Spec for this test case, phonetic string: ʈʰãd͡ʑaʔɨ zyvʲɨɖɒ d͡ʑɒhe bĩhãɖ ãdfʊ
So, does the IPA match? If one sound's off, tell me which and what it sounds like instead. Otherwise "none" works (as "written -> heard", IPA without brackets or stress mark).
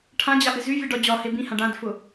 none